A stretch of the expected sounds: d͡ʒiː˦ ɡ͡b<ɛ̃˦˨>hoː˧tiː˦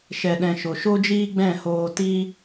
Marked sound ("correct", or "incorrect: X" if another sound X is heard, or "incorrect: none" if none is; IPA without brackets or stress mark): correct